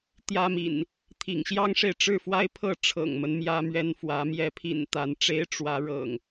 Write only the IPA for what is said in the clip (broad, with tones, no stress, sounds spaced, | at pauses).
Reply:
t̪ j ä˦ m ḭ˨˩ n | t̪ʰ ḭ˨˩ ŋ ɕ j ɑ˦ ŋ ʂ e˨ ɪ̯ ʈ͡ʂ ɻ̩˥˨ f w a˦ ɪ̯ pʰ ɤ˥˨ ʈ͡ʂʰ ɤ̰˨˩ ŋ m ə˦ n m j ä˦ m ɥ ɛ˦ n f w ä˨˦ m j ɛ˨˦ pʰ ḭ˨˩ n t̪ a˨˦ n ʈ͡ʂ e˦ ɪ̯ ʈ͡ʂ w ä˨˦ ɻ ɤ̰˨˩ ŋ